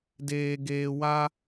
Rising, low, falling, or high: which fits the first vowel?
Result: low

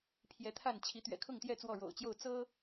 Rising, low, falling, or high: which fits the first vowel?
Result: rising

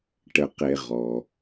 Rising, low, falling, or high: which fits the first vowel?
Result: low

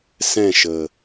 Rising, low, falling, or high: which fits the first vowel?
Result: falling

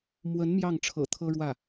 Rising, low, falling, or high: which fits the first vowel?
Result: rising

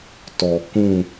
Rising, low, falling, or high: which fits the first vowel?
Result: low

